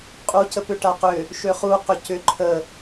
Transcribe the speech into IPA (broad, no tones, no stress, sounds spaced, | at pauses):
qʼ u c ə p ʏ ʈ a q ʏ | ʃ ø χ u q ʏ c ʏ ǃʰ ə